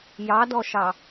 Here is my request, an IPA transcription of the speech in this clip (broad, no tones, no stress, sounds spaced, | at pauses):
j ɑ d ɔ ʃ ɑ